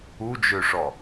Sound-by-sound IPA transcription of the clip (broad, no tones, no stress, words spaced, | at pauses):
ud͡ʒøʂɔ